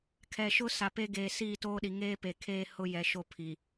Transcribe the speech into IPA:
kʰ ɛ˨ ʃ ʊ˦ s a˨ p e˦ ɡ eː˨ s iː˦˨ t oː˦ ɗ i˨ ŋ eː˦ p e˨ kʰ eː˦ h ʊ˦ j ɛ˨ ʃ o˦ pʰ i˨

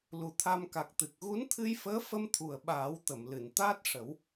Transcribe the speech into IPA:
l u˨˩ t̪ʰ a˧ m k a˨˩ k̚ t̪ ɨ˨˩ k̚ ɣ u˧˥ n t̪ʰ ɨ˧ j f əː˧˥ f ə˧ m t̪ʰ u˨˩ ə̯ ɓ aː˨˩˦ w t̪ ə˨˩˨ m l ɨ˨˩˨ n t̪ aː˦˥ t̚ ʂ ə˨˩˦ w

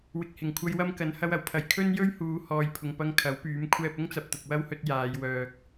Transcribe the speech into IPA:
w ɪ˨ k̚ h ɪ˨˩ ŋ kʷʰ ɐ˧ j w ɐ˥ m k ɐ˨˥ n h ɐ˧ w ɐ˨˩ w pʰ ɐ˨ j kʰ ɵ˥ n j ɵ˥ ɥ h uː˨˧ h ɔː˨ j pʰ ʊ˨ ŋ p ɐ˧ ŋ kʰ ɐ˨˥ w p yː˨˥ m kʷʰ ɛː˧ p̚ ʊ˥ ŋ t͡s ɐ˨ p̚ t̪ ʊ˨ k̚ w ɐ˥ w h ɵ˧ t̚ j aː˨˧ j w œː˨ k̚

